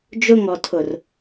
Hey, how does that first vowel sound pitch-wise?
high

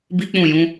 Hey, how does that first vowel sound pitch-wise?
high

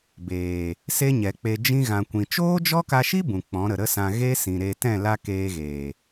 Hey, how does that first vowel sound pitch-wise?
low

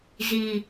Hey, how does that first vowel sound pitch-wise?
low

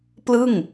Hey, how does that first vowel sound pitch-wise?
falling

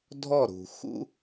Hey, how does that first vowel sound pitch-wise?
falling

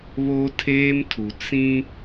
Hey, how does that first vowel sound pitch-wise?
high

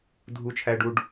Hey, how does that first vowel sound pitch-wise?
high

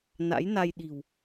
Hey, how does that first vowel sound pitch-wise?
rising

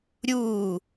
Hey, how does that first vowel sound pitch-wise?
falling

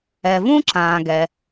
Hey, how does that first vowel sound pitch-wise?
low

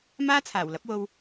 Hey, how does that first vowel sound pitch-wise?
high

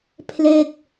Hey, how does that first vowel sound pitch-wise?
falling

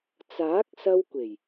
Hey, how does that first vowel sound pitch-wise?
rising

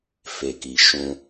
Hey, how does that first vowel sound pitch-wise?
low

